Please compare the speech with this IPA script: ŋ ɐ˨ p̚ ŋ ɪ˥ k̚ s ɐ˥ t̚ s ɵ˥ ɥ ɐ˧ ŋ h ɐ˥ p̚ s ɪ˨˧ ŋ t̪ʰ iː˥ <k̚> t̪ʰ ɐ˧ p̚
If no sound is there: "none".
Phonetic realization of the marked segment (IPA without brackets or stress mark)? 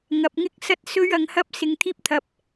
p̚